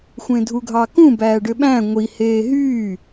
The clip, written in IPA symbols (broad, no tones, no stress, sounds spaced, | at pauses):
xʷ ẽ dʱ u ɡʱ ɑ k ũ b æː ɖ ø ɓ æ̃ ŋʷ i h eː ɦ yː